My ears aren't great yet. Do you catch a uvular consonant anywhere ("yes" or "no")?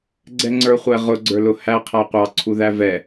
yes